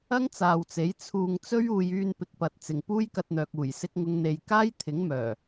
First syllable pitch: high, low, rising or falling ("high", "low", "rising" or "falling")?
high